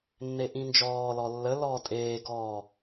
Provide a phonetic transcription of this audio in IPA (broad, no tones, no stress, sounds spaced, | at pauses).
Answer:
nː e ʔ ĩ n d͡ʒ ɔː l ɔ lː ə l ɔː tʼ eː ɡ ɔː